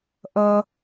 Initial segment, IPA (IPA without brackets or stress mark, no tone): ʔ